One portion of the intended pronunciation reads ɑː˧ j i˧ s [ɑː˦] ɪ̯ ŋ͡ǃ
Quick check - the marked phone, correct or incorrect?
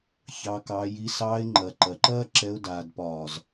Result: incorrect